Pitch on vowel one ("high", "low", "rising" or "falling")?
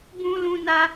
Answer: high